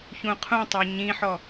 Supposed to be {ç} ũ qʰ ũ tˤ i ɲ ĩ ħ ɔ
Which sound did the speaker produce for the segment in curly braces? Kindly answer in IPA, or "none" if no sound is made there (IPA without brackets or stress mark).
ç